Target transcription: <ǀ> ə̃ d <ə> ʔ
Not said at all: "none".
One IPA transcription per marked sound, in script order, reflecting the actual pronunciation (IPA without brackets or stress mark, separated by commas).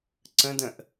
ǀ, ə̃